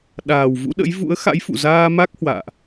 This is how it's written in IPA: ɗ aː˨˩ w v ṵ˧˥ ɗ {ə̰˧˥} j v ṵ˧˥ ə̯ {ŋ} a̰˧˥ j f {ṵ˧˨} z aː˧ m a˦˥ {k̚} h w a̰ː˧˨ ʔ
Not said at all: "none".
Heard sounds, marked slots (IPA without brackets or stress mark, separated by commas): ə̰˧˥, x, ṵ˧˨, k̚